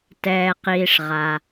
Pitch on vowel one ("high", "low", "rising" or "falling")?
low